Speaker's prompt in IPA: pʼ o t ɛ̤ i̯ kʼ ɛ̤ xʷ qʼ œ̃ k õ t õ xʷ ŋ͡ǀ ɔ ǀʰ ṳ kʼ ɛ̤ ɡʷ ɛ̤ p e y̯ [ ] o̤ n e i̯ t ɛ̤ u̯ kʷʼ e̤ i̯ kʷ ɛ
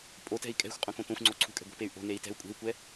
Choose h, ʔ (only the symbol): ʔ